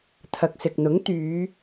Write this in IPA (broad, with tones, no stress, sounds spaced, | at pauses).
t̪ʰ ɐ˨ k̚ s ɪ˨ k̚ n̪ ʊ˨˥ ŋ t̪ yː˨˧